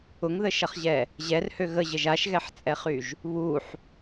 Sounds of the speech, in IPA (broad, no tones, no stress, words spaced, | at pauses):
ʊŋðəʃɐχʑɛ | ʑɛrhø ɣəʑəʒ aʃɣɛħt͡sʼɛχyʒ | βuħ